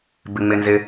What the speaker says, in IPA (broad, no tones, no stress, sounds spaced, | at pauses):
b ɪ ŋ͡m ɪ n z ɪ